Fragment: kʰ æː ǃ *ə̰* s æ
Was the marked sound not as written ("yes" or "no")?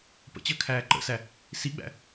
no